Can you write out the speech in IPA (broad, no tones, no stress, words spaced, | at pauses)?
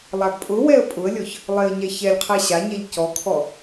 lˠaɡpʼʊwɛə̯ pʼʊə̯lʲɔç | lˠeə̯ɲɛçɛlʲqʰɛ ɕaɲɛʎ cɔkʰɔ